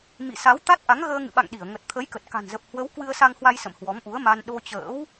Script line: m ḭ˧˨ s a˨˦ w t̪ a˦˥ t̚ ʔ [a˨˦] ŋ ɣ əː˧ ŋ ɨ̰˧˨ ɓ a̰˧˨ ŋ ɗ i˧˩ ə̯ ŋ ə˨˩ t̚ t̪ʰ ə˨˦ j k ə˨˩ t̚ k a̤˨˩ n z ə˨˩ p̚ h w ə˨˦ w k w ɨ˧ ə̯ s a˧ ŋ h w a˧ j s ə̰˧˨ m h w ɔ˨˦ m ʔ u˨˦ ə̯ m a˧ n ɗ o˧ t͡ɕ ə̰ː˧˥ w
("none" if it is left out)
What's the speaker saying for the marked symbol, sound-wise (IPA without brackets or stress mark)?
a˨˦